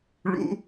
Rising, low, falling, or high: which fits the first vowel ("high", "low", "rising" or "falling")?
high